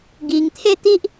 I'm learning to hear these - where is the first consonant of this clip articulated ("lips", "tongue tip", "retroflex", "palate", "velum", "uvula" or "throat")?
velum